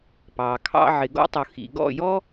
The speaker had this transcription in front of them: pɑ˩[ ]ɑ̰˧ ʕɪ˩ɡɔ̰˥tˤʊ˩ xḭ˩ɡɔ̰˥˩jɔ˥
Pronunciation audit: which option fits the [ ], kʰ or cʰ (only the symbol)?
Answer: kʰ